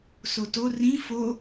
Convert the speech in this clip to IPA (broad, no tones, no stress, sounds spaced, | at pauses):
s o t o r ĩ f o